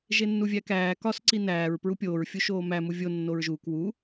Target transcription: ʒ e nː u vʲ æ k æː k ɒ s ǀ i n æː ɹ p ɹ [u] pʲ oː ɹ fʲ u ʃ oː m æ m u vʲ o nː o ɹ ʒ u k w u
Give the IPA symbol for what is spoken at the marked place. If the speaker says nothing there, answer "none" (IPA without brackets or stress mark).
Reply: u